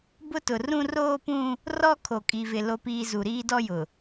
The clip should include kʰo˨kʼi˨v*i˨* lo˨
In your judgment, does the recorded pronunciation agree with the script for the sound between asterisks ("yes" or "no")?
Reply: no